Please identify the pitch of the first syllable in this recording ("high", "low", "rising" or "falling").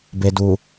low